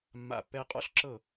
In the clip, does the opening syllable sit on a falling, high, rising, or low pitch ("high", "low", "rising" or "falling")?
low